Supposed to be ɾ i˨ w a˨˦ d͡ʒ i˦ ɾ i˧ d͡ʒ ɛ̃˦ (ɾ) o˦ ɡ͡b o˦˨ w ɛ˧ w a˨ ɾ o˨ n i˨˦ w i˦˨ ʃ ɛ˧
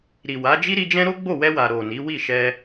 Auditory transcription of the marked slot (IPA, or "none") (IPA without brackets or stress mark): ɾ